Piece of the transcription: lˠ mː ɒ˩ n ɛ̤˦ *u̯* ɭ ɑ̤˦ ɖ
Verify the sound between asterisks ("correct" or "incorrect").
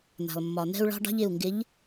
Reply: correct